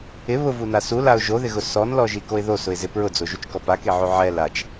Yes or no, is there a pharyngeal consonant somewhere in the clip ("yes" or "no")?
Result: yes